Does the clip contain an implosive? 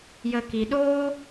yes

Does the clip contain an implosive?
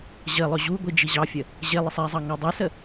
no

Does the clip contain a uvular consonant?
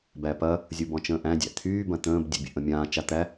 no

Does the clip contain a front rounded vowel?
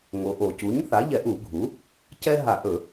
no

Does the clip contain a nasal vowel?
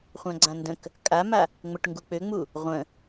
yes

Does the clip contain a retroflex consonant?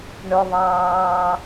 yes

